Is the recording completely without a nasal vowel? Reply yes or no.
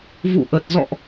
yes